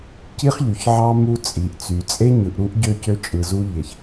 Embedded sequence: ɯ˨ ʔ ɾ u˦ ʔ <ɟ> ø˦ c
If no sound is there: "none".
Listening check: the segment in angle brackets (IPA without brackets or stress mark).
ɟ